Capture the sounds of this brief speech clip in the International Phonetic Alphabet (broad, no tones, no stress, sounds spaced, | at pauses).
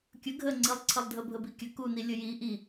kʲ ə ɡʱ ə ŋ͡ǀ i lˠ ǀʰ ə lˠ dʱ ə bʱ ə b i kʲ ə k u n i lʲ ə j i ʔ i